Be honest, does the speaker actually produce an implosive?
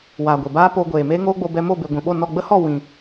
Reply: yes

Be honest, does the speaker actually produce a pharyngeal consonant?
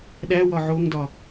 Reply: yes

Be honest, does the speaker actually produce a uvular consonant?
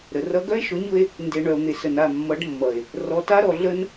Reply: no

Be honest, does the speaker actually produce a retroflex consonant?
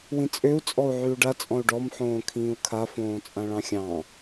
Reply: yes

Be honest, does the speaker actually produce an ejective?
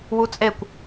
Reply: yes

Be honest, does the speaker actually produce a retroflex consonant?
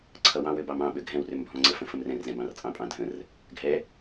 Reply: no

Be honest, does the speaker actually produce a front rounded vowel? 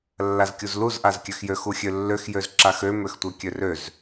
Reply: yes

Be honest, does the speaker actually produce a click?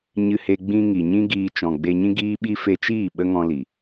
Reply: no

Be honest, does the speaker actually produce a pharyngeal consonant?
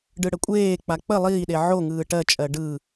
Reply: yes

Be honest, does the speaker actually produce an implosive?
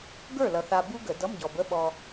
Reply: yes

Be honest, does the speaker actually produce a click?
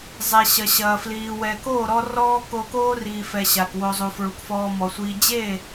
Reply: no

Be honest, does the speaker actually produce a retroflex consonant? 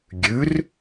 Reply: no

